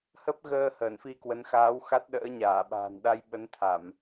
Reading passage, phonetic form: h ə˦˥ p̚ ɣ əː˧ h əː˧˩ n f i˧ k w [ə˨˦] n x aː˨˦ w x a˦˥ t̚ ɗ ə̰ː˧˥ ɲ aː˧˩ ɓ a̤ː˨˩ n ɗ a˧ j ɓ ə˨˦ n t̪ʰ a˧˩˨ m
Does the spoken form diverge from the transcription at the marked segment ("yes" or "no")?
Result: no